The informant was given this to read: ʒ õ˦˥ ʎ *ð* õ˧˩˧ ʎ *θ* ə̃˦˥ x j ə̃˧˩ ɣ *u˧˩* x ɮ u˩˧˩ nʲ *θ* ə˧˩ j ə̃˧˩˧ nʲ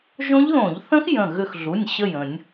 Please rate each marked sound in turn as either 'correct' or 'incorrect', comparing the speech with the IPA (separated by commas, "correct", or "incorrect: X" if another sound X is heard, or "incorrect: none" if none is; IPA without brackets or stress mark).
correct, correct, incorrect: ʏ˧˩, incorrect: ɕ